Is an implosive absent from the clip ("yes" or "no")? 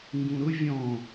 yes